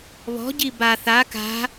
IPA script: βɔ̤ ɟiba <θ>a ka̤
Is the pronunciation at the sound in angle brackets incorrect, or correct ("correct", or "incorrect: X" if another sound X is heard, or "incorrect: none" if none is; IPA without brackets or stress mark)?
correct